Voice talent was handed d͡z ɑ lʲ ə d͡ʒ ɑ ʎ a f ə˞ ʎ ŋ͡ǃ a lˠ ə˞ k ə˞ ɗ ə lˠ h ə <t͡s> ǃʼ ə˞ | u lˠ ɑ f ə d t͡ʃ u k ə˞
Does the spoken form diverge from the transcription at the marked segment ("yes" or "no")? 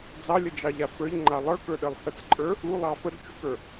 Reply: no